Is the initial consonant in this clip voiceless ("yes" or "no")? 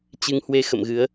yes